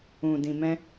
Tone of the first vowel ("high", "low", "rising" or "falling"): low